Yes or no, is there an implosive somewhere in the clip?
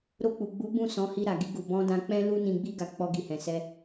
no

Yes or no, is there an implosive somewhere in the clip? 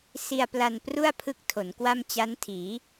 no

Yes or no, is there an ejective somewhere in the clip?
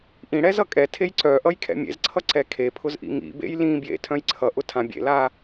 yes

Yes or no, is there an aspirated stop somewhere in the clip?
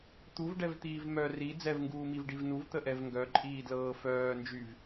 no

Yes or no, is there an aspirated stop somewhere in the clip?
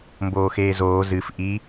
no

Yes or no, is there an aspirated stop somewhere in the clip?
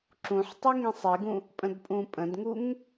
no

